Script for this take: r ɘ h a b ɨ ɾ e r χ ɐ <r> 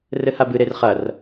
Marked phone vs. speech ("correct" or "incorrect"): correct